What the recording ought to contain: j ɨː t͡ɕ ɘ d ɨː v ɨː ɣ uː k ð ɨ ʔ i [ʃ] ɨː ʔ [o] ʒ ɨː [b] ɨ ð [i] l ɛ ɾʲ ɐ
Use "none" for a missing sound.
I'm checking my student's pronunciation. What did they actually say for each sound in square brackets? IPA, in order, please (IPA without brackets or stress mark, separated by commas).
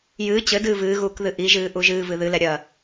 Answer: ʒ, u, v, ɨ